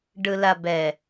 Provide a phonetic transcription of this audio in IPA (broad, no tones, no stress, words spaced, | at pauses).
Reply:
ɖɯlabɛ